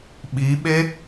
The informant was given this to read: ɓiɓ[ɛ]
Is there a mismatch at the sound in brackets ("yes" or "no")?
yes